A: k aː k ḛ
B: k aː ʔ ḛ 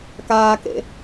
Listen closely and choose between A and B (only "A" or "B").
A